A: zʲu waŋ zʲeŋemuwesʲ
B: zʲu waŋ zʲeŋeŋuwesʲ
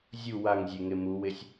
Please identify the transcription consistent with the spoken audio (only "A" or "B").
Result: A